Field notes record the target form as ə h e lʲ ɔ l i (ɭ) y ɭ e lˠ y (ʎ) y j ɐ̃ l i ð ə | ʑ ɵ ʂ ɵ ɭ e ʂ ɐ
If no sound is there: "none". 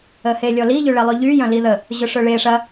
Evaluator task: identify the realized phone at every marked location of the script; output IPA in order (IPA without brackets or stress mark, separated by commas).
ʎ, ʎ